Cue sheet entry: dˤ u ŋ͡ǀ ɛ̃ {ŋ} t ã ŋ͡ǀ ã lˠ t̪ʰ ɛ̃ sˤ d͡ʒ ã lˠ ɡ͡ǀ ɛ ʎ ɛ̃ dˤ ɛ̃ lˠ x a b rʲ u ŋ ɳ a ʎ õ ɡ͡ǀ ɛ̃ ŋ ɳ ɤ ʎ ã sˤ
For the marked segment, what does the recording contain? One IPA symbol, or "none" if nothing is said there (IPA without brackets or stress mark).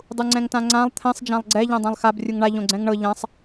ŋ